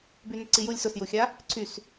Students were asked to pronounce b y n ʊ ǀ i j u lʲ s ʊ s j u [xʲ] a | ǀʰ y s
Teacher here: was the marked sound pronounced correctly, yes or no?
yes